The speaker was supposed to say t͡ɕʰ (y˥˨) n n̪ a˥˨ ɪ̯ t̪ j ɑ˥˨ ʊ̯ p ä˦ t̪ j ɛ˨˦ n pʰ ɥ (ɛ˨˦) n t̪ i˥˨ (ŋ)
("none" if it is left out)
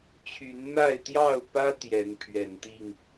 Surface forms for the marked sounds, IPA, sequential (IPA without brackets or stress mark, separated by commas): y˨˦, ɛ˨˩, ŋ